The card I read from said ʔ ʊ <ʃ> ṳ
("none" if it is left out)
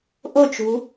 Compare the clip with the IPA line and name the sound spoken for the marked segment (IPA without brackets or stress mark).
t͡ʃ